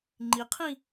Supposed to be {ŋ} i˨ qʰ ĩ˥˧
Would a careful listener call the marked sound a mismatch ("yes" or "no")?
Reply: yes